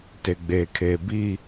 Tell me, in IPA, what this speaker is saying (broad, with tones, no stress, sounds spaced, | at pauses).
t e˨ ɡ͡b eː˨ kʰ eː˨ b i˦˨